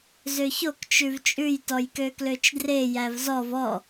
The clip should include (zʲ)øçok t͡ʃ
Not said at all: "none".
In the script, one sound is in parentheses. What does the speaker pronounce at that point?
z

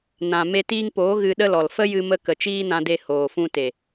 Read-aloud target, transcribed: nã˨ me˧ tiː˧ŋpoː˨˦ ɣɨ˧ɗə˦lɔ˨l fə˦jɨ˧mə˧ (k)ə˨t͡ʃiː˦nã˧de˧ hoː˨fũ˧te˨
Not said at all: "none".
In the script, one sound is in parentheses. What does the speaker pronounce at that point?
k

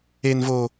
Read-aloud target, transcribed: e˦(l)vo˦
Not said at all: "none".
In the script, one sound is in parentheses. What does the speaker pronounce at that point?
n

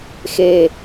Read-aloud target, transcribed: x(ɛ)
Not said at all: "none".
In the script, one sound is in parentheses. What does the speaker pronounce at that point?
e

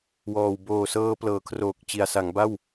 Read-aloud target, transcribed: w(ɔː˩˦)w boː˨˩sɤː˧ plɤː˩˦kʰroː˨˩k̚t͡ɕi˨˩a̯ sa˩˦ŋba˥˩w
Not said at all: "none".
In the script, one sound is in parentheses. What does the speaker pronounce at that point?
ɔː˨˩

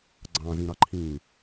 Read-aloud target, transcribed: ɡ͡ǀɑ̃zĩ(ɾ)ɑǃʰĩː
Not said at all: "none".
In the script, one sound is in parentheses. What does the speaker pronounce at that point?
ɾ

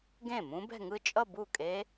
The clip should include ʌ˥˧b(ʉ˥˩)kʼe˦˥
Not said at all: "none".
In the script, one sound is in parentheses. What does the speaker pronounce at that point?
u˥˩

